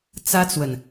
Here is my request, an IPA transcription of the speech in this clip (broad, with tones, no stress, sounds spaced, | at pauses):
t͡s ä˥ t͡s w ə˨ n